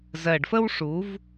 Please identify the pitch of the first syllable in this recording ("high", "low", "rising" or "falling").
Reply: low